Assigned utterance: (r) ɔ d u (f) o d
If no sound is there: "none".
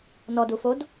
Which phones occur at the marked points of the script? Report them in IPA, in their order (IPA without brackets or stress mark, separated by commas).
n, f